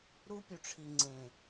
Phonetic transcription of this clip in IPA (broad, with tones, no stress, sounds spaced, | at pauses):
ɾ u˦ pʲ u˨ ʈ͡ʂʰ i˨ ŋ͡ǀ ẽ˨